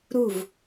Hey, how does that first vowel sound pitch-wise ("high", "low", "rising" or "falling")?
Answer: falling